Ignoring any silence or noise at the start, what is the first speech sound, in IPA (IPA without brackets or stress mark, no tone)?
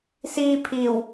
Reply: s